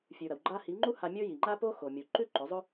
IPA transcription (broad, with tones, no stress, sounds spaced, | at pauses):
fʲ ʉ˨ ɾ ɐ˨ w ɡ͡ǃ a˧ h i˨˦ ŋ͡ǃ u˦ h a˧ mʲ ɵ˦ j i˨ ŋ͡ǃ a˦ p o˦ x o˨ mʲ u˨ ǃ ʉ˦ ǃ ɵ˨˦ zˤ ɵ˦